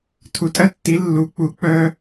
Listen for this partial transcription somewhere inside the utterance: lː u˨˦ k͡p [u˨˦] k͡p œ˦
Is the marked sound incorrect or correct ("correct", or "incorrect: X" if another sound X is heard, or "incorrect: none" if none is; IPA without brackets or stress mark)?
correct